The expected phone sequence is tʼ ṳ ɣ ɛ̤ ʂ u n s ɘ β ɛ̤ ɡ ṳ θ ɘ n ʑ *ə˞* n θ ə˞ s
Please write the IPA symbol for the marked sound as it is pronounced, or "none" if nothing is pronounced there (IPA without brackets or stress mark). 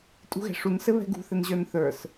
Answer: ə˞